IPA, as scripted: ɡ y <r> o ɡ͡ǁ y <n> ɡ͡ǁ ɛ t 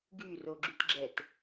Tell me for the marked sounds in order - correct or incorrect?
correct, incorrect: t

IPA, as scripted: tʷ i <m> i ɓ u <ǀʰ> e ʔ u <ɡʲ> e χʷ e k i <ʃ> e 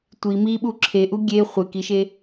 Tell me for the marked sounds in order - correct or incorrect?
correct, incorrect: ǁʰ, correct, correct

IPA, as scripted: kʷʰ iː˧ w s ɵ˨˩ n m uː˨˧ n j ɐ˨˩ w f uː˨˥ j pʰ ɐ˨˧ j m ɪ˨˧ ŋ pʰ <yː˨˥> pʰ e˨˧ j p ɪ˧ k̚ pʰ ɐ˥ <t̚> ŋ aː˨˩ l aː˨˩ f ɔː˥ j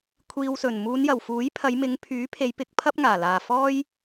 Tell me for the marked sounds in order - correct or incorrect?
correct, incorrect: p̚

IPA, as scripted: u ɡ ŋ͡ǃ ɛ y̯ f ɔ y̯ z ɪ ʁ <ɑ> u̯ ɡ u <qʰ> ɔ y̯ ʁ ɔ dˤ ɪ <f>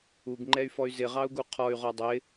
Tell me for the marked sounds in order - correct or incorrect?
correct, correct, incorrect: none

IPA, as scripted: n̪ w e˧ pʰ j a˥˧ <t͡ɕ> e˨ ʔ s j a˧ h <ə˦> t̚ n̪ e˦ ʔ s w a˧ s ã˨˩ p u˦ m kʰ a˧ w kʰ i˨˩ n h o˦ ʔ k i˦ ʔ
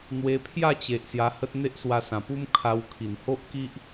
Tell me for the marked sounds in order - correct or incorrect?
correct, correct

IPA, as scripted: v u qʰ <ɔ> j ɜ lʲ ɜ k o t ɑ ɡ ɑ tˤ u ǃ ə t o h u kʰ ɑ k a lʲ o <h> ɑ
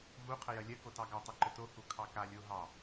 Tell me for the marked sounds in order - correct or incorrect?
incorrect: ə, incorrect: ɦ

